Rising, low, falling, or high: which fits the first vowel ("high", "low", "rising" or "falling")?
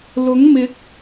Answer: rising